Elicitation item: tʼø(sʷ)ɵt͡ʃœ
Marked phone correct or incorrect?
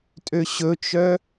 incorrect